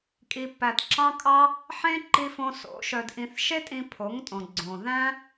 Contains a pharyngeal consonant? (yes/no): yes